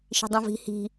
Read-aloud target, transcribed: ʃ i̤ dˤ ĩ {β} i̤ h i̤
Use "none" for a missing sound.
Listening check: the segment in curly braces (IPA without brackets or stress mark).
v